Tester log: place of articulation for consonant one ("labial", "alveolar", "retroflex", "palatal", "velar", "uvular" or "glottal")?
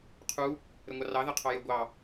uvular